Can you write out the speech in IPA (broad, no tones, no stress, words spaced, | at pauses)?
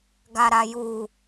ɡaɾaju